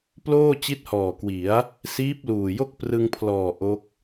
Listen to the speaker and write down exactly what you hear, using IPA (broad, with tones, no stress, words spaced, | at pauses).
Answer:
ploː˥˩ t͡ɕi˦˥t̚hɔː˨˩kwi˩˦a̯ | siː˦˥p̚luː˨˩jo˥˩k̚ prɯ˧ŋpʰlɔː˨˩ ʔo˦˥k̚